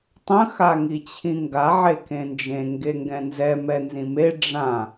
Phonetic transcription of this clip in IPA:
tˤ ə̃ x a ŋ i t͡ɕʰ ĩ ŋ ɡ a ʕ e k ẽ n d͡ʒ ẽ ŋ ɡ e ŋ ɡ ɛ̃ n z ɛ m ɛ n z ĩ m e ɖ͡ʐ ã

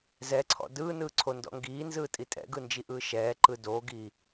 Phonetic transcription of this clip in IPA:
z ɛ ǀʰ ɔ̰ d ɯː n ɯː ǀʰ o n d ɔ̰ ŋ ɡ iː n z ɯː tʼ i tʼ ɛ̰ ɡ ɯ n d͡ʒ i ʔ ɯː ʃ ɛː ǃ ɯ d o ɡ iː

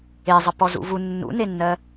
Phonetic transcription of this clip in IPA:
e zˤ ə p ɔ z ṵ v u nː ṵ n e nː ɜ

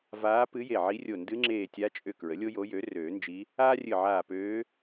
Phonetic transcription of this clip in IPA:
v aː˧˥ p ɨ˧˥ j e˧˩ ʕ i˧˥ rʲ o˧˩ n d ɨ˧˥ ŋ͡ǁ eː˧˩ tʲ a˧˥ t͡ʃʼ ʏ˧˩ k ɹ ə˩˥ lʲ o˥ j o˧˥ j ø˩˥ r øː˨˩˦ n d͡ʒ i˧˥ | aː˥ rʲ ɨ˧˩ ʕ aː˧˩ p øː˧˥

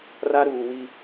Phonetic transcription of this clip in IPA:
r a˦ ɾ uː˨ w i˦

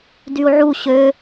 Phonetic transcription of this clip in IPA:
d y u̯ ʕ u ɕ ø

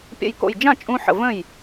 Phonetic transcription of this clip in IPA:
pʲ ə̰˧˩ j k o̰˧˩ j d͡ʒ ã˥˩ t͡ʃʼ ũ˧ ħ ə̰˧˩ v ə̃˥˩ j

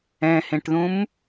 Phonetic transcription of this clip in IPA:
ɛ̃ h ẽ ʈ ð ũ m

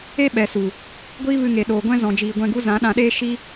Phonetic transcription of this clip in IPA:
e˦ ɓ ɛ˨ s u˨ | ɡʷ iː˦ v ɨ˧ ŋ e˨ ɗ oː˨ ɡʷ ɛ̃˦ z ɔ̃˨ d͡ʒ iː˨ ɡʷ ɛ̃˧ ɡ u˦ z ã˨˦ ɗ ã˧ ɗ eː˦ ʃ i˦

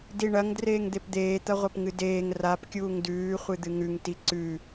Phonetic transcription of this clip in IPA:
d i ɳ ɐ ŋ d r eː ŋ d̪ e p d̪ eː t̪ ɐ ʁʷ ɐ p ŋ ɨ d eː ŋ r a p kʲ uː ŋ d ʉː χʷ ɨ d̪ ɨ ŋ ʉ ŋ t i ǀ ʉ

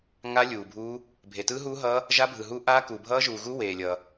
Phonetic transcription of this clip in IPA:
ŋ a˦˥ lʲ uː˨ bʱ uː˦˥ | bʱ e˨ t ɯː˦˥ ɦ uː˦˥ ɦ ʌː˦˥ | ʒ a˦˥ bʱ ɯ˨ ɦ u˦˥ ʔ a˦˥ k u˨ bʱ ʌː˦˥ ʒ u˨ ɣ u˦˥ w eː˨ lʲ ʌː˨

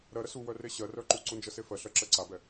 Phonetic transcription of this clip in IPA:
ɾ ɜ ɾ ə s u w œ r e ɕ ɜ r œ ǃ u ǀ u n d͡ʒ ə s e f ɜ ɬ ɜ ǁ ɜ ǀ a b ɛ

